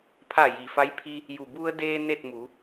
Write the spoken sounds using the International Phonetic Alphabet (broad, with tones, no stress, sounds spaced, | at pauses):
pʰ a˧˩ j i˩ f a˧˥ j pʰ i˧ | j u˩ b u˧ ə̯ d eː˧ n e˥˨ t̚ m uː˩˧